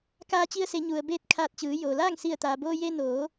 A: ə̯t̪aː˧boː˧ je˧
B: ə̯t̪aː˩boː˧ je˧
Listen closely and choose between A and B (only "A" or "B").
B